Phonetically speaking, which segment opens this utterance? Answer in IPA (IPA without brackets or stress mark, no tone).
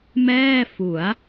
m